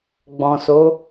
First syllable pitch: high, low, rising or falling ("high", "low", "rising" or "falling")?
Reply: low